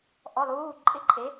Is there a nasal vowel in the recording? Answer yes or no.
no